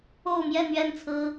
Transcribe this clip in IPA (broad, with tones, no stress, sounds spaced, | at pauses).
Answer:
o˥˧ ʊ̯ m j ɛ˥˧ n̪ ɥ ɛ˥˩ n t͡sʰ ɹ̩˥